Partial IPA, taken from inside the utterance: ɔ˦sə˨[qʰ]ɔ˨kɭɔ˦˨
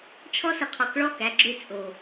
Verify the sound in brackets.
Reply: correct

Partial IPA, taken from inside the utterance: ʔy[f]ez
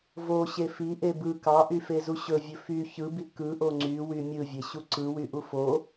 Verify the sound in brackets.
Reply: correct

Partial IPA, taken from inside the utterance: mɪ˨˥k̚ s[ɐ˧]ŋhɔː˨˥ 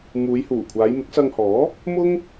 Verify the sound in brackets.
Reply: correct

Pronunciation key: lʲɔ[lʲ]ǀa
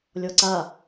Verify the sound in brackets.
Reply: incorrect: none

